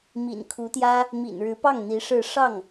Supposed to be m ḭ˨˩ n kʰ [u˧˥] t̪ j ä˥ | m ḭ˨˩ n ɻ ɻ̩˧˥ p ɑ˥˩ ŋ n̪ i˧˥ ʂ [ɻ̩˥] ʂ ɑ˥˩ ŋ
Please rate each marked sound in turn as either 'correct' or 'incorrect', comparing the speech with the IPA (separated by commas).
correct, incorrect